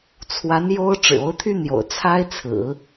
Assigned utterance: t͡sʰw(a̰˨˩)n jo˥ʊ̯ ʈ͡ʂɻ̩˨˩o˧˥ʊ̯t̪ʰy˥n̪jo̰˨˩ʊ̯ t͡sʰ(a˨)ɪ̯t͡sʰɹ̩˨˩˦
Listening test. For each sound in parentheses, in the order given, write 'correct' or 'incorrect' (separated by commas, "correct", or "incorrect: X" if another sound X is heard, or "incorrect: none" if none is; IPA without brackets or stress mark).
incorrect: a˧˥, incorrect: a˥